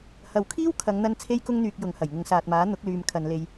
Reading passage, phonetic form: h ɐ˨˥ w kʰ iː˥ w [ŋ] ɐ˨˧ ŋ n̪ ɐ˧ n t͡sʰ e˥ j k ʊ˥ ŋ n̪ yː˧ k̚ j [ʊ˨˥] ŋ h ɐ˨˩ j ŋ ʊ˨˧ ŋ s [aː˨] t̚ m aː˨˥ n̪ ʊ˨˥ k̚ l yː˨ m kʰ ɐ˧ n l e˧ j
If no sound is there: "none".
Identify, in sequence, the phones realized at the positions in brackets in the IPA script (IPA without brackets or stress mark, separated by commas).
kʰ, ʊ˨˧, aː˨